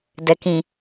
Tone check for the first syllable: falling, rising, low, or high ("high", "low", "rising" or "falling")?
low